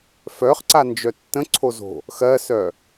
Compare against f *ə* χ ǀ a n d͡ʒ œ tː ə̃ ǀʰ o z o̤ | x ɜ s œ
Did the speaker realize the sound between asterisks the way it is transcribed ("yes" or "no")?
no